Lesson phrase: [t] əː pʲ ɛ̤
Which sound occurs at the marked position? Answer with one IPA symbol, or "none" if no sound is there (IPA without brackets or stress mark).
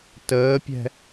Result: t